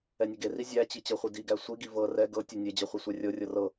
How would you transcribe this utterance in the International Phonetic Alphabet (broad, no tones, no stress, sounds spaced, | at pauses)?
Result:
ɛ nʲ ɛ ɡ e r i zʲ æ t͡ɕ i t͡ɕ ɤ χʷ i d i ɡ æ sʷ i ɡ i v ɤ r ɛ ɡ ɤ tʲ ɛ nʲ e d͡ʑ ɤ χʷ i sʷ æ rʲ ɤ rʲ ɤ r ɤ